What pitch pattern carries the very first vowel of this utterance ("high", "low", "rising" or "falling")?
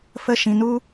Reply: high